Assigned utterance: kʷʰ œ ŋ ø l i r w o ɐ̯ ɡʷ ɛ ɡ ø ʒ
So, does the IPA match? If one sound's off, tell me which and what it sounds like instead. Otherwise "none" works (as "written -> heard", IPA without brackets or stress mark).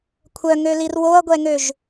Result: ɡ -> ŋ